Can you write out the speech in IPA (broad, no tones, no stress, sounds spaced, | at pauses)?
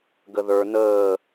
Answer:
ɡ ə ð ə˞ n̪ əː